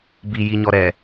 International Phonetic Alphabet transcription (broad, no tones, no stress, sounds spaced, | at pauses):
b i j i ɲ ɔ ɾ ɛ